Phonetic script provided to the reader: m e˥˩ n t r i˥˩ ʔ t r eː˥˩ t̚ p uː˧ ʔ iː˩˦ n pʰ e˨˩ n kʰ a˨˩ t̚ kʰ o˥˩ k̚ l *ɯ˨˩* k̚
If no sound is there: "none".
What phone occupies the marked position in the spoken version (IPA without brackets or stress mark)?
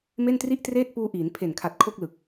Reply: ɯ˨˩